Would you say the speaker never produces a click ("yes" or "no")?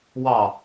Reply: yes